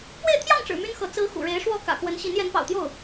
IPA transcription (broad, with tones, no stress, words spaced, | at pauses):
pwe˥˧ɪ̯t̪ʰjɑ˥˩ŋʈ͡ʂɻ̩˨˩ my˥nxɤ˧˥ t͡sɹ̩˧˥ xṵ˨˩ ɻe˧˥ɪ̯ʂwɔ˥˩ kä̰˨˩kwə˧˥nɕi˧˥n jɛ˧˥npɑ̰˨˩ʊ̯t̪jo˥˩ʊ̯